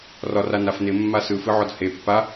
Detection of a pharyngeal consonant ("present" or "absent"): present